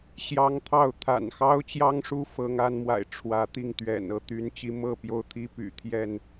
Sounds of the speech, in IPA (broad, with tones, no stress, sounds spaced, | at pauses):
ɕ j ɑ˦ ŋ t̪ʰ ɑ˥˨ ʊ̯ t̪ʰ a̰˨˩ n x ɑ˦ ʊ̯ t͡ɕ j ɑ˦ ŋ ʂ u˦ f ɤ˨˦ ŋ a˨˦ n m w a̰˨˩ ɪ̯ ʈ͡ʂʰ w ä˨˦ t̪ i˥˨ ŋ t̪ ɥ ɛ̰˨˩ n ɤ˨˦ t̪ y˨˦ n t͡ɕ i˨˦ m ɤ˥˨ p j o˦ ʊ̯ t̪ʰ i˦ p y̰˨˩ t̪ʰ j ɛ˥˨ n